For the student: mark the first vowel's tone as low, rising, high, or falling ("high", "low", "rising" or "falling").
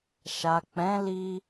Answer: low